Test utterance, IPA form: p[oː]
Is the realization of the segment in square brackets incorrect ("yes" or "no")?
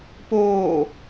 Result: no